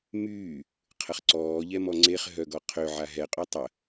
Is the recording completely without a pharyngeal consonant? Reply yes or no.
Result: no